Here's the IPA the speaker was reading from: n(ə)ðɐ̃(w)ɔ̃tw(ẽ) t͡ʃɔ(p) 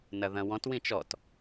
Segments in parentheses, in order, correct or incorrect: incorrect, correct, incorrect, incorrect

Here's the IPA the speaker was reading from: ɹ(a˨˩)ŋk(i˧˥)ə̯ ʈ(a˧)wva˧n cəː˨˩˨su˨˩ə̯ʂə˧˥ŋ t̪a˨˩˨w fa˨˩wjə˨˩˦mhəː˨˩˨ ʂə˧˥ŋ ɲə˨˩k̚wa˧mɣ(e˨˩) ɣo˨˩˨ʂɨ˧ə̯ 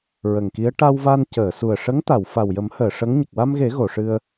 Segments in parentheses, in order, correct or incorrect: incorrect, correct, correct, incorrect

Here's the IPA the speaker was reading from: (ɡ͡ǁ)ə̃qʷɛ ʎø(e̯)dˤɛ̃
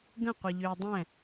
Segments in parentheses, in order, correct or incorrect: incorrect, incorrect

